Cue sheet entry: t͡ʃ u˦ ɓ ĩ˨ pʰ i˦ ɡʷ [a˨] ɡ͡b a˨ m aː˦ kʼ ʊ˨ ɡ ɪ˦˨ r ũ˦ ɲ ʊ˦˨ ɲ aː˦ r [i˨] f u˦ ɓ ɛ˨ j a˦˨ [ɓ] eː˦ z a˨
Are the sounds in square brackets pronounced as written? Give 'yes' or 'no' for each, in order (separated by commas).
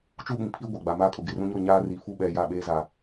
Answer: yes, yes, yes